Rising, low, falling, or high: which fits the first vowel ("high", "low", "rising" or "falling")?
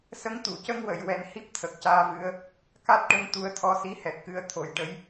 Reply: rising